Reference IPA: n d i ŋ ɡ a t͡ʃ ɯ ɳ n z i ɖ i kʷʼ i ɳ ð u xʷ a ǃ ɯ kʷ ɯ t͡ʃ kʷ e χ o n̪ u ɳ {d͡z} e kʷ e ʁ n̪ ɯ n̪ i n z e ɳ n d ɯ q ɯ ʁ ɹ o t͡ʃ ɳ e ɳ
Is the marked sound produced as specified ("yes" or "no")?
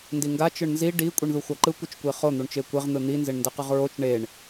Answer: no